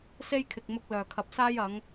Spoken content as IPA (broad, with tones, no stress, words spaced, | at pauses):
se˥jkʰɪ˨k̚mʊ˧k̚ lœː˨˩kʰɐ˨p̚saː˥j ɐ˨˥ŋ